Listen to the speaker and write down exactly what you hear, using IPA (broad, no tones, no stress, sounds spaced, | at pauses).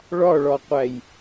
ɭ ɒ ɭ ɒ qʷ æ j